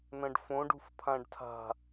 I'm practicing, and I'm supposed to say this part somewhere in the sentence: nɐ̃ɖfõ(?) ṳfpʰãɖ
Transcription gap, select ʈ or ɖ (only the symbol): ɖ